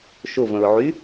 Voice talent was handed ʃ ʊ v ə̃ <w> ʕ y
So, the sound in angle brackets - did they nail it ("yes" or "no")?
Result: no